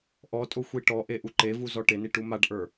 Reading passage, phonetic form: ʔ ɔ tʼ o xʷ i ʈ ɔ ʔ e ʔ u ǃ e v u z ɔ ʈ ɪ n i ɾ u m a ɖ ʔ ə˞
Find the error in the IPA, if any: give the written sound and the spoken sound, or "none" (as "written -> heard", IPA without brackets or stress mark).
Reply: ɾ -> ʈ